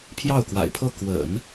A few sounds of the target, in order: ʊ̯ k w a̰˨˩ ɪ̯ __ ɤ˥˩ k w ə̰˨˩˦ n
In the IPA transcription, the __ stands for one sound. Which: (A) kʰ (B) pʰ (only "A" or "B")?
B